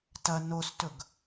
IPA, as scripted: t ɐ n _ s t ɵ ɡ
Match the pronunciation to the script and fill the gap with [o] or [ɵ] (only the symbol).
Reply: o